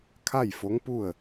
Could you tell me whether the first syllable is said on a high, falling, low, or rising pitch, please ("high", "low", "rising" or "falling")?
falling